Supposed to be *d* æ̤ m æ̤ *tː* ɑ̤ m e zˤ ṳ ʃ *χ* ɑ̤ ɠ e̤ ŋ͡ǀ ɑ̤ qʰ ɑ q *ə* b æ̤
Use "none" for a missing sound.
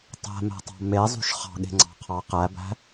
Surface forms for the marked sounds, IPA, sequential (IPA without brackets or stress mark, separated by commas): tˤ, tˤ, χ, æ